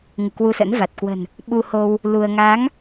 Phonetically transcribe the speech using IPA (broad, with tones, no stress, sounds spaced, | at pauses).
ŋ ɨ˧˩ k w u˧ s ə̰˧˥ n v a˨˩ t̚ k w ə̤˨˩ n | ɓ u˧ h o˧ w | l u˧ ə̯ ŋ aː˨˦ ŋ